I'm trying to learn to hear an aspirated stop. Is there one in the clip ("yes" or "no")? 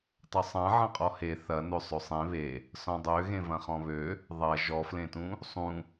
no